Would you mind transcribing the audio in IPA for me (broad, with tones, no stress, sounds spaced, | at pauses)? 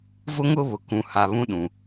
v ʊ˦ ŋ ʊ˦ β ʊ˨ k ũ˨˦ h a˨ β ũ˦ ɗ ũ˨